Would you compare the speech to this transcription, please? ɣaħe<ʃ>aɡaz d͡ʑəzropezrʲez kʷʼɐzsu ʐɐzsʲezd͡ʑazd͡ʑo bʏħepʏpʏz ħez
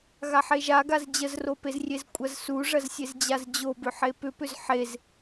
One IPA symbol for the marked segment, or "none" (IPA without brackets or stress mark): ʒ